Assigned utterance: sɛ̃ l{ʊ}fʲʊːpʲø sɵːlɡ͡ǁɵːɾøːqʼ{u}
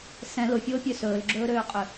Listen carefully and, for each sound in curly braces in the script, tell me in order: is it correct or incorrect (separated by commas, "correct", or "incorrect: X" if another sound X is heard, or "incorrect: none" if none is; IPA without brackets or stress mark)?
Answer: correct, incorrect: ʏ